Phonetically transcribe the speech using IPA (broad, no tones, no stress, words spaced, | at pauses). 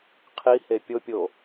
qʰihe pʲopʲo